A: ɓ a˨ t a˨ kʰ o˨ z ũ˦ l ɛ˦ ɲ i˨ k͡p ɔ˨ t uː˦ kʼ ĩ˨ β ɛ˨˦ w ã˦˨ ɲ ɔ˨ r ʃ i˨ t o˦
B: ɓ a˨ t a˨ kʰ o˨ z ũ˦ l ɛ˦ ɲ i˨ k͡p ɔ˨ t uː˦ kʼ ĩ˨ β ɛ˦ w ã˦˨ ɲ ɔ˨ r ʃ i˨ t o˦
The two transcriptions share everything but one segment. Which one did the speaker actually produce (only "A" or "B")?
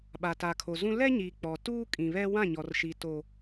B